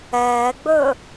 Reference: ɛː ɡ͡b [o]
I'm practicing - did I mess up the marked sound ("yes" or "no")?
yes